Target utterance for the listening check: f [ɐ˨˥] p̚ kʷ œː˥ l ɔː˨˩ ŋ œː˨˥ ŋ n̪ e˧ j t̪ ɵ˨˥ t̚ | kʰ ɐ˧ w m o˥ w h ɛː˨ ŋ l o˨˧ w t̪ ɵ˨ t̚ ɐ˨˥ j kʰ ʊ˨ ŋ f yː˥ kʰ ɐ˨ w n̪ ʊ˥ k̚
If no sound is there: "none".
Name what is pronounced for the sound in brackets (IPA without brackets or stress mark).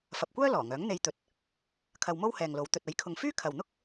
ɐ˨